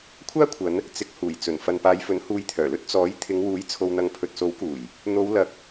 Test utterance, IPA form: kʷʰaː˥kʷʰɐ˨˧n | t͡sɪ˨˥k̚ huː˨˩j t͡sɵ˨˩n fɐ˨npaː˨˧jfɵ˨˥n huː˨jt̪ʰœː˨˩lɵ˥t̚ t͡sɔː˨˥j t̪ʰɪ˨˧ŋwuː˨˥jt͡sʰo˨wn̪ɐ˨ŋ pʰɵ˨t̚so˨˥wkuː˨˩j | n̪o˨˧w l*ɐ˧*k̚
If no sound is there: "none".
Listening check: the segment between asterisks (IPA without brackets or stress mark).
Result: ɐ˨˥